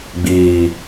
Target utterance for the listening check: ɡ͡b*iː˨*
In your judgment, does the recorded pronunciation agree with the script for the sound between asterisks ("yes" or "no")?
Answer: yes